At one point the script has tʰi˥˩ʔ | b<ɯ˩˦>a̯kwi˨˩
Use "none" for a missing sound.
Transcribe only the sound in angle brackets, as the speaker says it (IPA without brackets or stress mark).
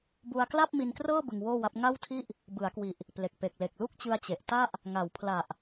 ɯ˩˦